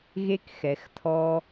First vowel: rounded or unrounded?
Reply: unrounded